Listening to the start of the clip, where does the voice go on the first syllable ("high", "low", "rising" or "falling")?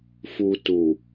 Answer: low